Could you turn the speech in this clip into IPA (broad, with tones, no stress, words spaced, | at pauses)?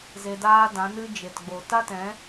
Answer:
ze˧daː˦dã˨˦ nɨ˦d͡ʒe˨tɡ͡bo˨ ta˦tɛ̃˨˦